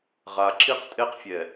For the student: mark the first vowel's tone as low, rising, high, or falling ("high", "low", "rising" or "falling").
low